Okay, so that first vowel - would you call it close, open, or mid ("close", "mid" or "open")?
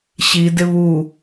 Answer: close